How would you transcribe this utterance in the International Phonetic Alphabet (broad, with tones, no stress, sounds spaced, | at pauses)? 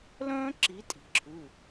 l œ̃ː˥ ǁ i˨˦ tʼ i̤˩ ǁʰ ʉ˩˧˩